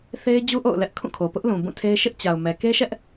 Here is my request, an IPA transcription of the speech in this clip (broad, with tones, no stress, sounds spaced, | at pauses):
θ e˦ ɪ̯ d͡ʑ u˦ ʔ o̰˦˨ ʊ̯ l ɛ˦ ʔ kʰ ũ˦˨ kʰ o˨ p ʊ˦ ʔ l ũ˨ b ũ˦˨ tʰ e˦ ɪ̯ ʃ ɪ˦ ʔ t͡ɕ a˨ ʊ̯ m ɛ˨ k e˦ ʃ ɛ˦ ʔ